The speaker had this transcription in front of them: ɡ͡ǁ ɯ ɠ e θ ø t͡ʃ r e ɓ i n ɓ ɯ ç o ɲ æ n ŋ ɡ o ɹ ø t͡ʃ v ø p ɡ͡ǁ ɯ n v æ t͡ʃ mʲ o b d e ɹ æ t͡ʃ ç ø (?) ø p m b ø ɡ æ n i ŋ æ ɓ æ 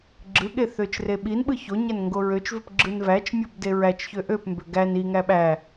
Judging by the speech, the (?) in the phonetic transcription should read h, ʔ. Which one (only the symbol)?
ʔ